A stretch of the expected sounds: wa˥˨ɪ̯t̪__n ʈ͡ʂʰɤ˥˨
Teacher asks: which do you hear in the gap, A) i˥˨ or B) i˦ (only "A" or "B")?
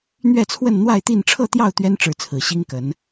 A